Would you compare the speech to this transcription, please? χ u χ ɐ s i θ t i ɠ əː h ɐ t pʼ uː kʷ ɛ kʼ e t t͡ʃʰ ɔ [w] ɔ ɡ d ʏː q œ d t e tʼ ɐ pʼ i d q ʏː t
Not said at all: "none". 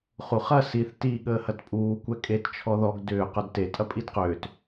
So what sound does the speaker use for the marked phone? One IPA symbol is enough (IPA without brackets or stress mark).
ð